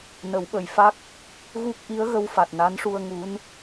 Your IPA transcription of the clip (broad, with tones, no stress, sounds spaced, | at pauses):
n ə˨˩˦ w ɓ ə˨˩ j f a˦˥ k̚ | ɣ u˦˥ k̚ ʔ i˧˥ ə̯ ɣ ə˧ w f a˨˩ t̚ n a˧˥ n ʂ u˧ ə̯ ŋ u˧˥ n